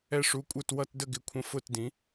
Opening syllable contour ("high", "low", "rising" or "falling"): falling